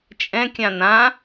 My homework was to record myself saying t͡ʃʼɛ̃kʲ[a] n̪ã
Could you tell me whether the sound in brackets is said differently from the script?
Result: yes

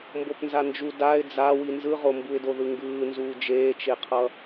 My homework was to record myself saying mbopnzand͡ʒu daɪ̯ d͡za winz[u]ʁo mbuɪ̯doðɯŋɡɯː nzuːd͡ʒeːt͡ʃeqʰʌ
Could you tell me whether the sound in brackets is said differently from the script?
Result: yes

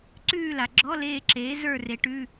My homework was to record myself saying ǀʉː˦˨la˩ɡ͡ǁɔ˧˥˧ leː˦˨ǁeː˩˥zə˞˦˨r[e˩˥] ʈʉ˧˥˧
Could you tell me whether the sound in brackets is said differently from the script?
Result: no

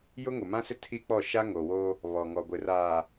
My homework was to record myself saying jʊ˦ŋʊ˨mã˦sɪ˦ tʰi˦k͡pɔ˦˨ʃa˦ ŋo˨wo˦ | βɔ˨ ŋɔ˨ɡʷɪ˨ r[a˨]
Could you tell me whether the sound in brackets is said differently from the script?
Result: yes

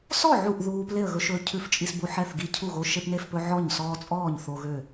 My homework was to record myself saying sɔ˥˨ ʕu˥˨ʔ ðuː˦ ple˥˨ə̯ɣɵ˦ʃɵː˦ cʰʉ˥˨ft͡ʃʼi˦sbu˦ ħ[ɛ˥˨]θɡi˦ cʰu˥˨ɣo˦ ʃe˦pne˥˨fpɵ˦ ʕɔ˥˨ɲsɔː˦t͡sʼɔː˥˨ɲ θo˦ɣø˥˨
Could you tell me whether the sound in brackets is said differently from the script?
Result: no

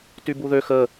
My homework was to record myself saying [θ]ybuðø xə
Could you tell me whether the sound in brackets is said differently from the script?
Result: yes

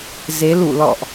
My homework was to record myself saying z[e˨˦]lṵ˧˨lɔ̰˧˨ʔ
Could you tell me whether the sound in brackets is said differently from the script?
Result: no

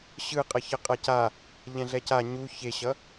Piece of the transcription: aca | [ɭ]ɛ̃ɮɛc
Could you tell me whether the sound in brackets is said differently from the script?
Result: yes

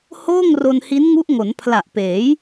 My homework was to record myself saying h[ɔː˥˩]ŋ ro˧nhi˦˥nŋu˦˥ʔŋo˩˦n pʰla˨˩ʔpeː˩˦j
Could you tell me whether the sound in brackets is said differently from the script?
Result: yes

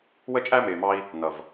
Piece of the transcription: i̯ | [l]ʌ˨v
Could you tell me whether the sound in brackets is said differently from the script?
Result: yes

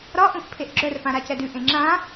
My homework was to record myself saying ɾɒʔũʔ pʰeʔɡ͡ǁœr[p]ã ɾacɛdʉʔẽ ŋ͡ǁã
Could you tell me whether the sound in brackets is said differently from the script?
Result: no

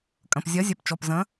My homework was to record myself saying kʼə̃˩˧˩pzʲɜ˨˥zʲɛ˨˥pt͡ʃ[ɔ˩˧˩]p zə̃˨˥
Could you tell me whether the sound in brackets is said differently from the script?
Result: no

